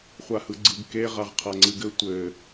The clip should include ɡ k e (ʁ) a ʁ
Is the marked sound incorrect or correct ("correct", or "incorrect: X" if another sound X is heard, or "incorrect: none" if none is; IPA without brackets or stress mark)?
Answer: correct